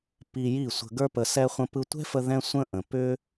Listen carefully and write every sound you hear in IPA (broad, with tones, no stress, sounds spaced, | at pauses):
p i˧ j i˦˨ sʷ ə̤˧ ɡ ə˞˦ p ə˧ s ɛ˦ χʷ ə̃˧ p ɯ˧ tʷ ɛ̤˦ f ə˧ ð ɛ̃˦ sʷ ə̃˦ ʔ ə̃˨ p ʏ˦